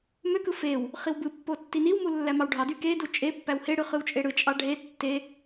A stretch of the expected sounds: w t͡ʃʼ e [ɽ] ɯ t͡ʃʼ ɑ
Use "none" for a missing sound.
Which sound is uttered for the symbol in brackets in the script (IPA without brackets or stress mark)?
ɽ